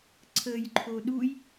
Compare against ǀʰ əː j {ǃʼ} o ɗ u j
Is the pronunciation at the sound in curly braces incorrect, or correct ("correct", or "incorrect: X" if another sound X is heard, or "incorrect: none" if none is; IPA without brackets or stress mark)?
incorrect: ǃʰ